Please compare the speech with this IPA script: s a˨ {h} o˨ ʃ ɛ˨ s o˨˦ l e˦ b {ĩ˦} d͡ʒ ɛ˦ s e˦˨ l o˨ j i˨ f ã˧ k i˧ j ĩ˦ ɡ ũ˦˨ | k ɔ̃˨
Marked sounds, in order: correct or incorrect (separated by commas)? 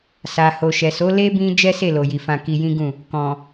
correct, correct